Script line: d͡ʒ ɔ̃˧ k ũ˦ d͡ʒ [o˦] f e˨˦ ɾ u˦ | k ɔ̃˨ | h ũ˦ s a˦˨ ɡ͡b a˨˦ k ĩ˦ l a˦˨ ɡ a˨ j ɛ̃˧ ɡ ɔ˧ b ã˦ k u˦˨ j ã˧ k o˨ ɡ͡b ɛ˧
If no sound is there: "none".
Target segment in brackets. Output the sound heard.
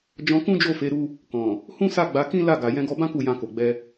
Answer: o˦˨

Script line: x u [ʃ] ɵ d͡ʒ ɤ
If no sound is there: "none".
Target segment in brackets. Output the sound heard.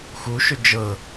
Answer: ʃ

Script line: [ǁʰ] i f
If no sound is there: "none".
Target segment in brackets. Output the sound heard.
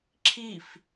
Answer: ǁʰ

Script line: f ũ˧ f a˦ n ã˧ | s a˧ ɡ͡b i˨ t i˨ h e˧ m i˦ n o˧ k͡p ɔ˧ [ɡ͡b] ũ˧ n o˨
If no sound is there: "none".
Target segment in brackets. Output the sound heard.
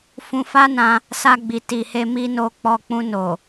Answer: k͡p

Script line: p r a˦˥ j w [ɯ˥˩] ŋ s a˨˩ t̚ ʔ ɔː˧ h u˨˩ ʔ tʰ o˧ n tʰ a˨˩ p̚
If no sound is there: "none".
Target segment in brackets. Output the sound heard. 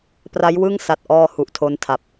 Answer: ɯ˥˩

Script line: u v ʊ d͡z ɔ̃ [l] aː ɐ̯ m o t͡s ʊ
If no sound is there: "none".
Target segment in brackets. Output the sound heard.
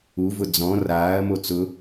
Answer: r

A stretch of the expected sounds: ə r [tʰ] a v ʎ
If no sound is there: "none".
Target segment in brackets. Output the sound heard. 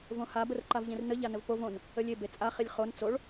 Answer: ǃ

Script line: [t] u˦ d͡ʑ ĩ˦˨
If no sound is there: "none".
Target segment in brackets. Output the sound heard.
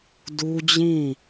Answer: d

